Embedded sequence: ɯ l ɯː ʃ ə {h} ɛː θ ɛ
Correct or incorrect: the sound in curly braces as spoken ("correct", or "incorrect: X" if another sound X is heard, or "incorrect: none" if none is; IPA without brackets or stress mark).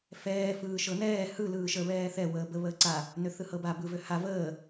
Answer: incorrect: β